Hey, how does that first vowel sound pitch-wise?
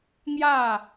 falling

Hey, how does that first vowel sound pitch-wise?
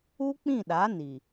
high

